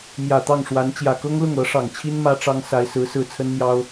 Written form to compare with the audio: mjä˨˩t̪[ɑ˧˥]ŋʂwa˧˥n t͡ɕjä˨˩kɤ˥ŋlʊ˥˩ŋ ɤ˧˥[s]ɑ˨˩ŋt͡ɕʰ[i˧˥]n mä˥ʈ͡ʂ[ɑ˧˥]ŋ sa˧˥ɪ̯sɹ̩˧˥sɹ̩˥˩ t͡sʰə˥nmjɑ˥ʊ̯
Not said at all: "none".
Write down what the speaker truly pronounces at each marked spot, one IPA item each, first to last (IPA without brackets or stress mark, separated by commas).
ɑ˥˩, ʂ, i˥, ɑ˥